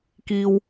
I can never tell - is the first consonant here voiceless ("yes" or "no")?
yes